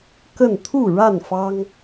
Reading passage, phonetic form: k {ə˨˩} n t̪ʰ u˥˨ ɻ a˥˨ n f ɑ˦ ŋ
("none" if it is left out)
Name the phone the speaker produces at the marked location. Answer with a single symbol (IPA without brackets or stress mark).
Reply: ə˥˨